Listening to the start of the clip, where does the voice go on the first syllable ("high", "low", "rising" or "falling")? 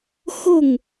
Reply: falling